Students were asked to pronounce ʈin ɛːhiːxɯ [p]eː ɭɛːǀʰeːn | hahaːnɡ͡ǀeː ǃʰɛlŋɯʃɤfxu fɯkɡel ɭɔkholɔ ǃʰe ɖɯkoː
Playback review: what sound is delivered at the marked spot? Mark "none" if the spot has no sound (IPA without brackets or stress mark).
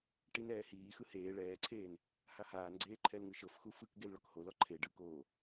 h